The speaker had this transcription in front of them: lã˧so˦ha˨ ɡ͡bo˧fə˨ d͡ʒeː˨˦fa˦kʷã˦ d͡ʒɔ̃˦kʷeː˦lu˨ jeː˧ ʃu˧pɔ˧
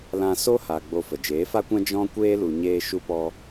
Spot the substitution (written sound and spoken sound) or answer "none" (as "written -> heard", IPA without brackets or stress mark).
j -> ɲ